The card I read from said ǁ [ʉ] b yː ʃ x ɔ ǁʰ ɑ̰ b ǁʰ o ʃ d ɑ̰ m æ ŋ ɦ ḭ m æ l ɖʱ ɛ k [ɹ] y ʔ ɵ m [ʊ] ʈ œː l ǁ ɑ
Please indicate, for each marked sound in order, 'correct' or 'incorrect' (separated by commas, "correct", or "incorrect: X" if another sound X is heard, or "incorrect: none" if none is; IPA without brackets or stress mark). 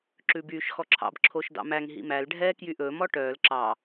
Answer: correct, incorrect: j, incorrect: ɔ